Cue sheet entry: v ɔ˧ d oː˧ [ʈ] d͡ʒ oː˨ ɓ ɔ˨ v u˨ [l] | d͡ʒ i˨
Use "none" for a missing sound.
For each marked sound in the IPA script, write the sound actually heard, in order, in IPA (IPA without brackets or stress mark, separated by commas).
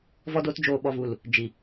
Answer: t, l